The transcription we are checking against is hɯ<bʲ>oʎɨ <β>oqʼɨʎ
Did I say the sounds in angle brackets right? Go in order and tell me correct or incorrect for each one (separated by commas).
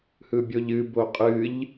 correct, incorrect